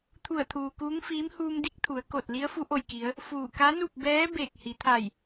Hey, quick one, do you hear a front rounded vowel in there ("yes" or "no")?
no